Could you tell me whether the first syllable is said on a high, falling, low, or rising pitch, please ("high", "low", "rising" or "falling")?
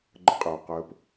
high